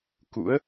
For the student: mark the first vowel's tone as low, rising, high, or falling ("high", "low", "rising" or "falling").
rising